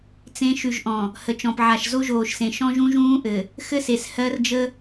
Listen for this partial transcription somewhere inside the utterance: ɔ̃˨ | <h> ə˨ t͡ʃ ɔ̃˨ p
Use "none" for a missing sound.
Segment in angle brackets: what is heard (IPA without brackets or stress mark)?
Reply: h